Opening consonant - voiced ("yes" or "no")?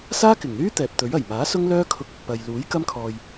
no